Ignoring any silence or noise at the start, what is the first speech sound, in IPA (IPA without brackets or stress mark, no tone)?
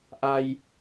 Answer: ʔ